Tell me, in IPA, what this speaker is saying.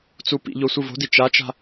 t͡s u p ḭ ʎ o sʷ ɨ v o̤ d i t͡ʃ a t͡ʃ a̤

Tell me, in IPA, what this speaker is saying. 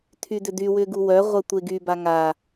tʰ y d ʏ d y w ʏ ɡ u w œ ʁʷ ə tʷ e ɡ y b a ŋ a

